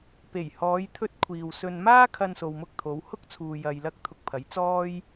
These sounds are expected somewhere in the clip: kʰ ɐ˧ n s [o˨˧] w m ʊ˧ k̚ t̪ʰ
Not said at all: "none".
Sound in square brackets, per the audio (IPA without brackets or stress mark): o˨